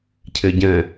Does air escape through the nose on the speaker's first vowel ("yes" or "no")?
no